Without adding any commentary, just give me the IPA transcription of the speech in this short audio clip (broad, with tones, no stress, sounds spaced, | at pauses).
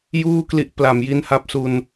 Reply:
j uː˥˩ k l i˦˥ ʔ p l a˨˩ m j i˦˥ n h a˦˥ p̚ s u˧ n